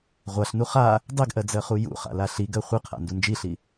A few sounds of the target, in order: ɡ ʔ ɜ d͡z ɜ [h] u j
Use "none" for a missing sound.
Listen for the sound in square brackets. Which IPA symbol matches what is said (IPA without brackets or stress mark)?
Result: χ